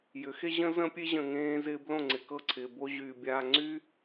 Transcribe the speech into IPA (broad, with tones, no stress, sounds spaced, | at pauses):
j ʏ˨˦ x e˦ ʑ ə̃˦ z ə̃˦ pʲ e˦ ʑ ə̃˨ ŋ ẽː˦ z ɪː˦ b l õ˦˨ ŋ͡ǀ ɪ˨ k ɤ˦˨ ǀʰ ɪː˨ b o˦ ʑ yː˨ bʲ aː˨ ŋ͡ǀ y˦